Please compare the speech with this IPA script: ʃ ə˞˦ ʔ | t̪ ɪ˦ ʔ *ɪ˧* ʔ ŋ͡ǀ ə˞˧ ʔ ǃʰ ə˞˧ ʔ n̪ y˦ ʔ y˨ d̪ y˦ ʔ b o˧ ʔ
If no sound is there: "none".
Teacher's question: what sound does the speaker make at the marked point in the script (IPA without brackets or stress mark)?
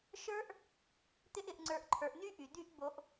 ɪ˧